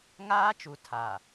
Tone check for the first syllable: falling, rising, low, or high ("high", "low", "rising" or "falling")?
high